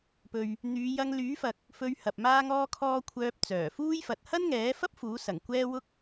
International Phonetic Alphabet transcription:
p ɵ˨ ɥ | n̪ yː˨˧ j ɐ˧ ŋ l yː˨˥ f ɐ˨ k̚ | f ɵ˧ ɥ h ɐ˨ p̚ m aː˥ ŋ ɔː˥ kʰ ɔː˥ kʷʰ œː˧ p̚ t͡s œː˨˩ f uː˥ j f ɐ˨ t̚ h ɐ˥ n ŋ ɛː˨˥ f ɐ˥ p̚ f uː˨˥ s ɐ˨˩ ŋ kʷ ɛː˥ w ʊ˥ k̚

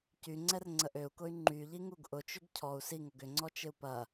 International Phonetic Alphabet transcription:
c y ŋ͡ǀ ɛ r ŋ͡ǀ ə ʔ ø u̯ k ʊ y̯ ŋ͡ǃ y ʎ i ŋ u ɡ ʔ ʊ t͡ʃ ʏ ɡ cʰ ɔ u̯ s i ŋ o ɡ ʏ ŋ͡ǀ ɔ t͡ʃ ɪ u̯ p ɐ

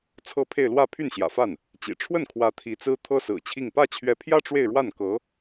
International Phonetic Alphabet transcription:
t͡sʰ ɤ˥˧ pʰ e˥˧ ɪ̯ l w ä˥˧ pʰ y˥˩ n ɕ j ä̰˨˩ f a˥˩ n | t͡ɕ ḭ˨˩ ʈ͡ʂʰ w ə˥˩ n kʰ w ä˧˥ t̪ʰ i˧˥ t͡s ɹ̩˥ t̪ʰ ɤ˥ s ɹ̩˨˩ t͡ɕʰ i˥˧ ŋ p ä˥˩ t͡ɕʰ ɥ ɛ˧˥ pʰ j ä˥ ʈ͡ʂ w e˥˧ ɪ̯ ɻ w a˥˩ n k ɤ˧˥

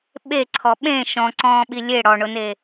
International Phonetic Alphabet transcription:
ɓ e ǀʰ ɔ ɓ ẽ ʃ ɔ̃ ǀ ɔ̃ː ɓ i lʲ e ɽ ɔ ɳ ʊ n e

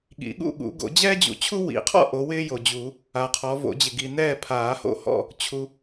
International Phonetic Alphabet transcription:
ɠ ḭ˨˩˦ ɠ ṵ˥˨ ɠ ṵ˨˩˦ ɡ o̰˨˩˦ d͡ʑ ɛː˥ d͡ʑ ṵ˨ t͡ɕʰ u˥ w ḭ˨˩˦ qʰ ɔ̰˥˨ ʔ o˨˦ w ɪː˥ j o˨ d͡ʑ u˨˩˦ | a˨ qʰ ɔ˨˦ v o̰˨˩˦ d͡ʑ ɪ˨ ɡ i˨ n ɛː˥˨ pʰ aː˨˩˦ h o̰˥˨ h ɔ̰˥˨ | t͡ɕʰ u˨

